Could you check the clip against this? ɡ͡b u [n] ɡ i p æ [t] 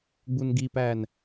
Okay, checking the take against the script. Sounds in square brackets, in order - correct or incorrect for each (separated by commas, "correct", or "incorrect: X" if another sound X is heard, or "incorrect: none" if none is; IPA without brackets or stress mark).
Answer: correct, incorrect: n